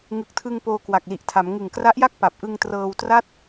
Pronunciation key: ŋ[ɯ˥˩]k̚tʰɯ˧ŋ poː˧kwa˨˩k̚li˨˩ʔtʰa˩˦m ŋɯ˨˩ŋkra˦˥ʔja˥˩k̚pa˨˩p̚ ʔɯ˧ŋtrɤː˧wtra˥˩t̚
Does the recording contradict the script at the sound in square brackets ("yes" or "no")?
yes